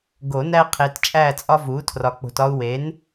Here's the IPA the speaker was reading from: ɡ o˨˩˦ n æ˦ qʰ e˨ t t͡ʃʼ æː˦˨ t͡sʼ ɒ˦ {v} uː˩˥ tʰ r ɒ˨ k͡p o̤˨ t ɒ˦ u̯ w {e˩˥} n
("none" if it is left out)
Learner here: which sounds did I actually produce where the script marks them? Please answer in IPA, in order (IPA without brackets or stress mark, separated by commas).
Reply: v, e˩˥